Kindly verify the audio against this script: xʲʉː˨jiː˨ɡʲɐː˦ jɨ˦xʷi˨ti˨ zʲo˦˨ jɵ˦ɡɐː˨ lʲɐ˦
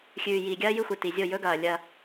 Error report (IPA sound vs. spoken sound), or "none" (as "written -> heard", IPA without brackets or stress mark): none